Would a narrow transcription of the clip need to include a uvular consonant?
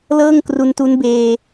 no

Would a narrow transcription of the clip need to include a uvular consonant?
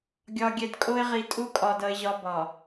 yes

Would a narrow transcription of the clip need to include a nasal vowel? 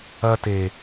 no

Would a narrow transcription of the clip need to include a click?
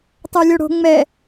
no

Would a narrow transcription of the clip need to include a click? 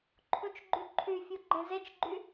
yes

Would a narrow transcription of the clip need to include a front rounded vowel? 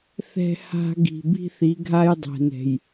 no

